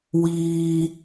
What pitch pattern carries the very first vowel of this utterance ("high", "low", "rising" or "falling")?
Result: low